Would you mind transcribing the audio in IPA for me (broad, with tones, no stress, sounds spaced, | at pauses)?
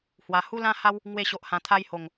h w a˨˩ h u˦ l ã˦ h a˦ w | ŋ w e˧ ɕ o˨ ʔ h ã˨˩ t̪ʰ a˦ j h o˨˩ ŋ